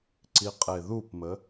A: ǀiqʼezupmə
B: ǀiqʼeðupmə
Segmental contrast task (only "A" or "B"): B